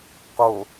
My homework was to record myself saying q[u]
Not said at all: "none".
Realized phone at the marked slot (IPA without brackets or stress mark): o